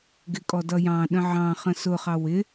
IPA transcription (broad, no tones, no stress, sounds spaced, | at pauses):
ɡ ɪ kʼ ɔ d ʌ j ɑ̃ ɗ ə̃ ʕ ɑ̃ χ ə̃ s ʊ χ ɑ w ɪ